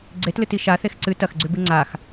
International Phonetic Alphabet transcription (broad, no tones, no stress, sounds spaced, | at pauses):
ɡ͡ǀ e t l ɨ t i ʃ a θ e x ǀ ɨ t ɐ x ɡ͡ǀ ʉ b ɨ ŋ͡ǀ a x